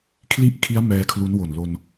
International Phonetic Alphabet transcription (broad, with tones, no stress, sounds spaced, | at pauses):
kʰ l i˥˩ ʔ kʰ i˦˥ a̯ m ɛː˧ kʰ l u˦˥ n w o˨˩ n l o˧ n